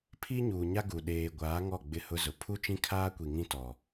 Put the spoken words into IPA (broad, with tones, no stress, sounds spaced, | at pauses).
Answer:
pʰ i˦ ɲ uː˨ ɲ a˦ ɡ u˨ ɗ eː˨ ɡʷ aː˨˦ ŋ ɔ˦˨ ɡ͡b ɪ˦˨ h ʊ˦ z ʊ˨ pʰ u˦ t͡ʃ ĩ˦ kʰ aː˦ kʷ i˨ ŋ ĩ˦ t ɔ˨